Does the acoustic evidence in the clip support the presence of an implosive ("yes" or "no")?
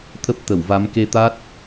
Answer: no